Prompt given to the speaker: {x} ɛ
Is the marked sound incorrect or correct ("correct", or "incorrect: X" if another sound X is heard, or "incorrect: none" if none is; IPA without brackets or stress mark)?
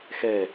correct